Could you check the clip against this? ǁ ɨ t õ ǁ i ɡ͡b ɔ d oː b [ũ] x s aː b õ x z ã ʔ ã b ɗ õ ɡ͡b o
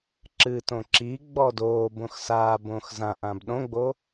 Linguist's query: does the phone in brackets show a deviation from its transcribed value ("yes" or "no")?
yes